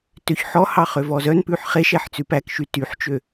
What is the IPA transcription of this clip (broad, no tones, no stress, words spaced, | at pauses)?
tøçħɔhɑ χøvɔzœnpʉħ χeʃɛħ t͡sʉpækʃy tyħt͡ʃø